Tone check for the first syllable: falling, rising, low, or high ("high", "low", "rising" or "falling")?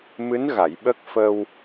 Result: rising